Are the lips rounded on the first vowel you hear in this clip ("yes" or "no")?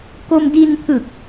yes